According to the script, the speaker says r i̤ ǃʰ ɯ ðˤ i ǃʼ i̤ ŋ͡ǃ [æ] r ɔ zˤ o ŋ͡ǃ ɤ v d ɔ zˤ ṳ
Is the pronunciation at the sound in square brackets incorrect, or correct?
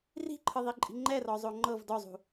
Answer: incorrect